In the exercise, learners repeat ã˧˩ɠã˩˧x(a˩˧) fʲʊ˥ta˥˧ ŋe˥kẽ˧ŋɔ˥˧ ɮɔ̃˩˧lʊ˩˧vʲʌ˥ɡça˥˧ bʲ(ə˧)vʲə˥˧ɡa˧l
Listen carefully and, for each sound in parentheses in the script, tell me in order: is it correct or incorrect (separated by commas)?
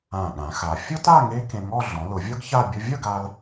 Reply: correct, incorrect